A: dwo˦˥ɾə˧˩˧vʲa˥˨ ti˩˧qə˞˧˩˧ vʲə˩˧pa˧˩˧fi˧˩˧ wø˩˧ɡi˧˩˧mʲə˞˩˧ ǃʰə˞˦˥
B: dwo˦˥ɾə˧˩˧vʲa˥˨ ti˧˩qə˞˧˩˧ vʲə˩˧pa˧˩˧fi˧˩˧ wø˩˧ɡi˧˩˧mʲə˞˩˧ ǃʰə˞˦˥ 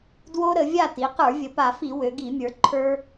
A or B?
A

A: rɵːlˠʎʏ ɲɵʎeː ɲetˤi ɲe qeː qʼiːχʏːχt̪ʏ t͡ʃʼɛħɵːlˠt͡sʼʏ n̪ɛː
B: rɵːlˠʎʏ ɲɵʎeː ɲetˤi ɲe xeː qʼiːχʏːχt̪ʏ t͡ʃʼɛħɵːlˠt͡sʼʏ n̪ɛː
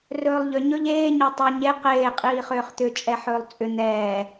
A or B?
A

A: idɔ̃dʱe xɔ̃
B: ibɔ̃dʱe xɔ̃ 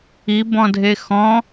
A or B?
B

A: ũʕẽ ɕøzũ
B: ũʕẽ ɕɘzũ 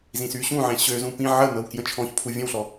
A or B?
A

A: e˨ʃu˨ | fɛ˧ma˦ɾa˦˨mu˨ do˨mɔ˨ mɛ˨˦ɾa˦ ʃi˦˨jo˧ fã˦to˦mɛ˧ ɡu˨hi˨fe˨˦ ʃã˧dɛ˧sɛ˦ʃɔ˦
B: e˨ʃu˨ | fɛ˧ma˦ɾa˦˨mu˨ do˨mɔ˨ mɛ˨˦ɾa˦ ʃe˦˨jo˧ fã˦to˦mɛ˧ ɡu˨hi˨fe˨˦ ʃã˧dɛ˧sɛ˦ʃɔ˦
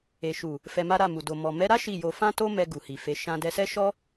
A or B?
A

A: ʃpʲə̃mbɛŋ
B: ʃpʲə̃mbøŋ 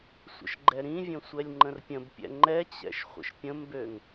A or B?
B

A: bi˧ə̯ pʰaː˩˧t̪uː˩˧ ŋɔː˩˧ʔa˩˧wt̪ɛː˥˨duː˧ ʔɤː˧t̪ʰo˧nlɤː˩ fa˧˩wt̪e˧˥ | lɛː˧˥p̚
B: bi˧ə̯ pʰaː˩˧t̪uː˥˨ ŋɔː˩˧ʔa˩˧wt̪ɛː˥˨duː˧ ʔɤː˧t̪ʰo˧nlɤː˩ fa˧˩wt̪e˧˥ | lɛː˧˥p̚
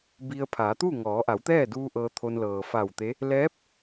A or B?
B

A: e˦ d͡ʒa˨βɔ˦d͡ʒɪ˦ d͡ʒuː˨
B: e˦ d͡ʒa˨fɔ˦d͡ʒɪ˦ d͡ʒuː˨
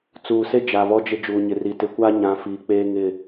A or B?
A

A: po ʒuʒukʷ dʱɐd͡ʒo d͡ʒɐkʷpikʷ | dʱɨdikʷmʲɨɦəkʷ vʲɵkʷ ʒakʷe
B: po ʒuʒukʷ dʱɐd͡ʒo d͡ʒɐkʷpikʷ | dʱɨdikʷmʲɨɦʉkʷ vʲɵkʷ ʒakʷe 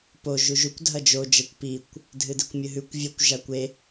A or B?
B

